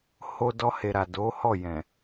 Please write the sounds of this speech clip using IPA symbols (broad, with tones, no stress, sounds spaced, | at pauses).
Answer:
h o˧ d ɔ˧ h e˨ ɾ a˨ d o˨˦ h ɔ˦˨ j ɛ̃˨